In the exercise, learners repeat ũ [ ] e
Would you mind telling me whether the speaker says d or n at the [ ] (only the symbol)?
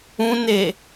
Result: n